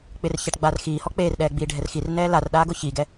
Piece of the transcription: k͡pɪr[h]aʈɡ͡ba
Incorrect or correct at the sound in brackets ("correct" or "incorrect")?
incorrect